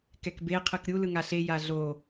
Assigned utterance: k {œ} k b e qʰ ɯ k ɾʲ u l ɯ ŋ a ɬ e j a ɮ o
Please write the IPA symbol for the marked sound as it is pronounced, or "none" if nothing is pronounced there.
ɛ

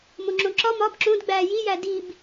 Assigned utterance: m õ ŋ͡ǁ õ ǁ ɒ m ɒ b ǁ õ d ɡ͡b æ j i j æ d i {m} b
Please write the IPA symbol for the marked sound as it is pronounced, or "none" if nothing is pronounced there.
none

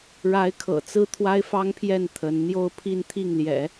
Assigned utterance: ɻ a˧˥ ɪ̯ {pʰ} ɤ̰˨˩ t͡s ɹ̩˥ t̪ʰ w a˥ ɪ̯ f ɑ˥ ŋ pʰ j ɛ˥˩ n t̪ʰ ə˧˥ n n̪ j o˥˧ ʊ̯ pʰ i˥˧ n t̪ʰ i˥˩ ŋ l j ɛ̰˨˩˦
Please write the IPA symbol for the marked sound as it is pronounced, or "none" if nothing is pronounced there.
kʰ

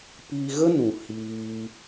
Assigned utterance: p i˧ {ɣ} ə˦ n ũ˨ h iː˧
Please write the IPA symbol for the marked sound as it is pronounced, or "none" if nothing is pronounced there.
ɣ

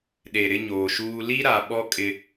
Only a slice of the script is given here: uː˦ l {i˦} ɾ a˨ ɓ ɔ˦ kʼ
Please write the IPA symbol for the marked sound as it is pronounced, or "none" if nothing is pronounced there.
i˦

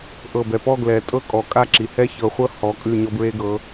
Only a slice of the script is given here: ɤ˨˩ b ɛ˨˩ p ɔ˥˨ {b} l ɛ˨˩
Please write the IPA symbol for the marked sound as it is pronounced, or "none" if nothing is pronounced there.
ɡ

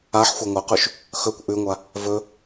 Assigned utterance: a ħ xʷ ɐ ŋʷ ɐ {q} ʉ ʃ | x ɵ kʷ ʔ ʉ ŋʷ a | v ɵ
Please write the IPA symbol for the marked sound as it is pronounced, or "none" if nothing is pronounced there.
q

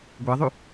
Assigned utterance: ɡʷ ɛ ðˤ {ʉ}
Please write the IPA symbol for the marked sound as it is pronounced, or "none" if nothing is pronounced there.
ʉ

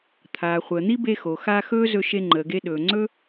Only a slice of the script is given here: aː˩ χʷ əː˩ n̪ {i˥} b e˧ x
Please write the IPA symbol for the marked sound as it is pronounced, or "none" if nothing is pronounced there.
i˥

